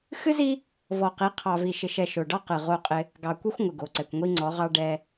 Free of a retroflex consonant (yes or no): no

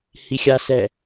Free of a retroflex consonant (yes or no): yes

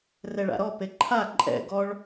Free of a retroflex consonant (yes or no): no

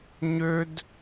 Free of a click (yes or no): yes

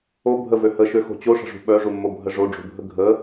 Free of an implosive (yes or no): no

